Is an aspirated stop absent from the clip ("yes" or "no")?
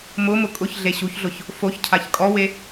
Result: no